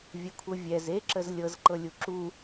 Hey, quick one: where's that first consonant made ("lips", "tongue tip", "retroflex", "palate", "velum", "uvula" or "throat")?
lips